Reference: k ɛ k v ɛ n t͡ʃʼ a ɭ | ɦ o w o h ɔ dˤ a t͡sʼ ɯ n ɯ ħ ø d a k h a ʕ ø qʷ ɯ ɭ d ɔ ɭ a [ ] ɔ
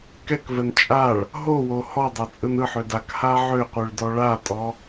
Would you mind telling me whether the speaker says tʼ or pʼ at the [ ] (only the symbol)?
tʼ